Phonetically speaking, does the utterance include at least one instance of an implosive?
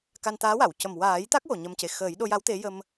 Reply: yes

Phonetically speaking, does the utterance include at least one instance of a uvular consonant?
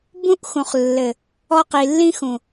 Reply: yes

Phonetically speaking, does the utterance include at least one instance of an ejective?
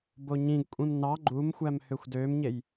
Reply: yes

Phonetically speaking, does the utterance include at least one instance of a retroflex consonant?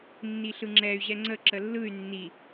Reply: no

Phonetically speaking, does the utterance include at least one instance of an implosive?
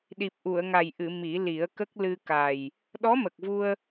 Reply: yes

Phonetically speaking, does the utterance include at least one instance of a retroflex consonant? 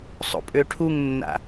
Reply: yes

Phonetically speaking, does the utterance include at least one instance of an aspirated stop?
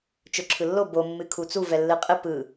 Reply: yes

